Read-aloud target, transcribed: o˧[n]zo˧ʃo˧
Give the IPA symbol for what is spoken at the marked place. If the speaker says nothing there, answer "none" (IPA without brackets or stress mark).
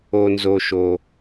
n